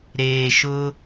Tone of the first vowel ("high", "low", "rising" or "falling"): low